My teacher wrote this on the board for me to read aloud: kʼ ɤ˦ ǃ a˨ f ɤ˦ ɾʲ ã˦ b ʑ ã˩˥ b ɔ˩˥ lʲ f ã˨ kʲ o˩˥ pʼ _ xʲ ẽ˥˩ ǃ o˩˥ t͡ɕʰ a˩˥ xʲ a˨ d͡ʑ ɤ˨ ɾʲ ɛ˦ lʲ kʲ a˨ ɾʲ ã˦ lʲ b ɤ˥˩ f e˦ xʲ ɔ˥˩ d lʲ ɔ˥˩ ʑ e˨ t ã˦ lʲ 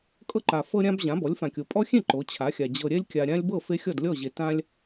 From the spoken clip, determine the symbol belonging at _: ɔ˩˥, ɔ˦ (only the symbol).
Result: ɔ˦